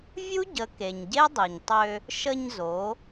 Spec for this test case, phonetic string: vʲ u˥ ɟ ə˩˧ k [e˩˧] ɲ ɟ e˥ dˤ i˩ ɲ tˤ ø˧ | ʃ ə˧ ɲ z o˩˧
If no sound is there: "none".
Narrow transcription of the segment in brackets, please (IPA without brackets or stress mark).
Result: e˩